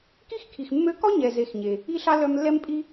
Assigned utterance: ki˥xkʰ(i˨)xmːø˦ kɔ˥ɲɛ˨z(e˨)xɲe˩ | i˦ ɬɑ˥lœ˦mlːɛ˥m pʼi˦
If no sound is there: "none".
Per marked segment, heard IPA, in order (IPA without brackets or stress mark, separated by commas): i˨, e˨